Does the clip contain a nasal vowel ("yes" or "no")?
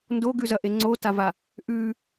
no